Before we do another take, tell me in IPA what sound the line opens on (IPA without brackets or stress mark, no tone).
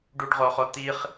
ɖ